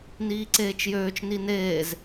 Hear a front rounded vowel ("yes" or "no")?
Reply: yes